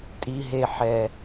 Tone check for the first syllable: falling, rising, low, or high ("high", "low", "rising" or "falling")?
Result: low